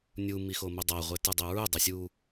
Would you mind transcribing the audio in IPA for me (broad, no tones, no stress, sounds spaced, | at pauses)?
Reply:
nʲ u m i x o m o dˤ a ʁʷ e t ɯ dˤ ɛ ɹ u dˤ e sʲ u